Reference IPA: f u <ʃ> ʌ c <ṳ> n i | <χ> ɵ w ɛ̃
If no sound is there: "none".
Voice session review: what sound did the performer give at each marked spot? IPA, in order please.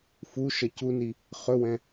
ʃ, u, χ

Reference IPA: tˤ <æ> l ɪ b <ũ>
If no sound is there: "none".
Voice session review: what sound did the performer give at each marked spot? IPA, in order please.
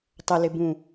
ə, ũ

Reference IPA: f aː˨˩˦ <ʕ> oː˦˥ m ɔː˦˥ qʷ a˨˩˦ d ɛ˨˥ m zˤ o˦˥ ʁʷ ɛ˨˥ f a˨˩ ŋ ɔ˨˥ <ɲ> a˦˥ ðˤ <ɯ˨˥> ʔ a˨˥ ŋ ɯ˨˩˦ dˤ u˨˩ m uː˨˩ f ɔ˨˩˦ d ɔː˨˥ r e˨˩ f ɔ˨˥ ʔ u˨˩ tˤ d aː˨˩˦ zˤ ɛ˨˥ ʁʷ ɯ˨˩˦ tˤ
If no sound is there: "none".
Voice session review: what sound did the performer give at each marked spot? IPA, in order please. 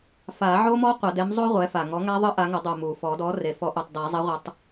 ʕ, ŋ, ɯ˦˥

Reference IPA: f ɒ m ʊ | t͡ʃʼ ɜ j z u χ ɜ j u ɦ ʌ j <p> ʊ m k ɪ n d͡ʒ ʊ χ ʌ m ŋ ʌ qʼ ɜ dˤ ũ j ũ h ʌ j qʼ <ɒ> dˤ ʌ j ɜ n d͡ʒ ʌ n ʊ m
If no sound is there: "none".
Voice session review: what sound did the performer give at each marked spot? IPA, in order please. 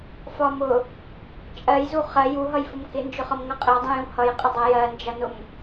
f, ʌ

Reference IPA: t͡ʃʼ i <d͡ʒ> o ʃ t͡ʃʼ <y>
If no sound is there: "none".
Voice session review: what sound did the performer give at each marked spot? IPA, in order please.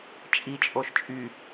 t͡ʃʼ, y

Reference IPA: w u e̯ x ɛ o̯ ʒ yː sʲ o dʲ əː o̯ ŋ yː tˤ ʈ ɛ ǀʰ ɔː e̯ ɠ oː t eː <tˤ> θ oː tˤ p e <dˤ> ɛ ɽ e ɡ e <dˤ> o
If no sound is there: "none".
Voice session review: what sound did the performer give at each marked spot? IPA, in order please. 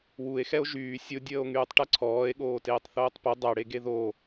tˤ, dˤ, ð

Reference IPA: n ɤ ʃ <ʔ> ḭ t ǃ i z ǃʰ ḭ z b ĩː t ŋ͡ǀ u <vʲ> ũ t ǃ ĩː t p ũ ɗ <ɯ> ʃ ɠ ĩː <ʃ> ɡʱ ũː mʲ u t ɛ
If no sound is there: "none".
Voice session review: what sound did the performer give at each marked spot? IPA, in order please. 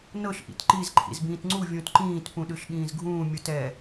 ʔ, vʲ, ɯ, z

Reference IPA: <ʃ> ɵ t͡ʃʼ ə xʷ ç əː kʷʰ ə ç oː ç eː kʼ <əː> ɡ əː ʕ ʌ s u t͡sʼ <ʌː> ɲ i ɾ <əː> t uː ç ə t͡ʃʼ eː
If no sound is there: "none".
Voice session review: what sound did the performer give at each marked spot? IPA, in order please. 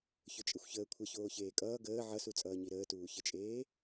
ç, ʌː, ʌː, əː

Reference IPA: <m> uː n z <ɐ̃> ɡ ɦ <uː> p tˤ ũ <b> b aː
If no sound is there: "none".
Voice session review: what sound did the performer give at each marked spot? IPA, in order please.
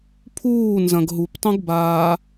pʰ, ɐ̃, u, ɡ

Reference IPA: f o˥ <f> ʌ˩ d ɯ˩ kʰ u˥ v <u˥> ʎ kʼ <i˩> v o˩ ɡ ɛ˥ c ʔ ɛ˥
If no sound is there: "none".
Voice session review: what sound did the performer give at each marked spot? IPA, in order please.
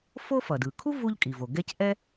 f, u˥, i˩

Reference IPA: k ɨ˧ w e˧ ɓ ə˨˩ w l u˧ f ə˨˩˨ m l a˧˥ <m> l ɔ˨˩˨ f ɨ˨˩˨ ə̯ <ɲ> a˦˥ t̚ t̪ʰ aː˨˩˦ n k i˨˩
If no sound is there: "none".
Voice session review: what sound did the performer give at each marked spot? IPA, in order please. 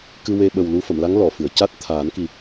ŋ, c

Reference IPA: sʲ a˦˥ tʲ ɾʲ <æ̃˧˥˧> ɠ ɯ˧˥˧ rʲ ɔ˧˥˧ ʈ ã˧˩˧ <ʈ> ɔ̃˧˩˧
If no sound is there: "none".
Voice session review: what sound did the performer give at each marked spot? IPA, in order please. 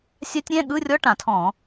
æ̃˧˥˧, tʰ

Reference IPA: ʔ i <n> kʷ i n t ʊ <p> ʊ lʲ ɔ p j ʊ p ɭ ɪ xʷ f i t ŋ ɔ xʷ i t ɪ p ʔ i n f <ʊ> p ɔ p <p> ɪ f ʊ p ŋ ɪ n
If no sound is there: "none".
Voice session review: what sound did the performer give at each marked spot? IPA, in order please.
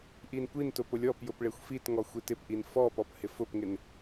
n, p, ɔ, h

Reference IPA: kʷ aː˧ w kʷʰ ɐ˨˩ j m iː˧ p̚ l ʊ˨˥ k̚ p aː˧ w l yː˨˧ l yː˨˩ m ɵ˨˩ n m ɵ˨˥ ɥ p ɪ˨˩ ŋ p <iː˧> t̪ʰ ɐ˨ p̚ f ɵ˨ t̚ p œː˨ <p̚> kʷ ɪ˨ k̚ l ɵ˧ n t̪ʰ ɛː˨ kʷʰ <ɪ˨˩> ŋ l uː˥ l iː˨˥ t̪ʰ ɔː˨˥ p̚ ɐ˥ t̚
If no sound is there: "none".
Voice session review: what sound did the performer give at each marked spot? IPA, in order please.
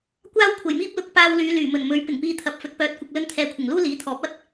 iː˧, t̚, ɪ˨˩

